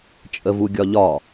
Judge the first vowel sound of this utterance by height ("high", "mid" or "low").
mid